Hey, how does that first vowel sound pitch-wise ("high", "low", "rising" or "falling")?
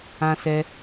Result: high